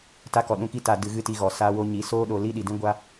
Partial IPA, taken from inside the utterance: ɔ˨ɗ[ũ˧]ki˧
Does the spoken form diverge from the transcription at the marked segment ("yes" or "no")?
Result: no